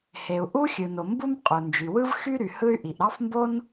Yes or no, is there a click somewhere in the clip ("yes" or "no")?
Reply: no